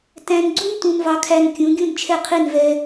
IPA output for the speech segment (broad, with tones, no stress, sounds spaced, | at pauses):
t æ̃˧ n ɡ͡ǀ u˥ n t ũ˧ n v ɑ˧ kʰ æ˧ n kʲ ũ˩˥ ɡʲ ũ˥˩ n t͡ʃʰ ɛ˥˩ qʰ i˥˩ n v ɛ˧